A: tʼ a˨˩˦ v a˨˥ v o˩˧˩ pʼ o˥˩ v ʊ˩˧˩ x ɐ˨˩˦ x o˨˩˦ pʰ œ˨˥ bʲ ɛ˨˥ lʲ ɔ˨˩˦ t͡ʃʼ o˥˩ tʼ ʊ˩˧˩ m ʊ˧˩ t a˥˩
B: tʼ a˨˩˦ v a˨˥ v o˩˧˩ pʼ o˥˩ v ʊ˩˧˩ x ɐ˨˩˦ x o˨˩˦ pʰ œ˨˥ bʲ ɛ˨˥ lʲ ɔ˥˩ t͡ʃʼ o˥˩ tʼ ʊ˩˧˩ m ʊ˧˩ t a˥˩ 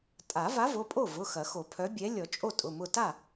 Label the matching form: A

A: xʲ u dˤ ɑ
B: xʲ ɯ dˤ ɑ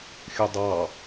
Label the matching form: B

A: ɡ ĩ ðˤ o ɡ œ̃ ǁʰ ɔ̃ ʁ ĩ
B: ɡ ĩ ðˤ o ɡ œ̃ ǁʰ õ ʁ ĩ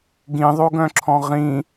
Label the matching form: A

